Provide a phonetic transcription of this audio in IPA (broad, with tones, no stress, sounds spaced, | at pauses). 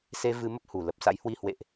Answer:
s e˧ v ɨ˧ m ə˦˥ p̚ h u˨˩ l ə˨˩ p̚ s a̰˧˥ j h w i˧ h w ḛ˧˨ ʔ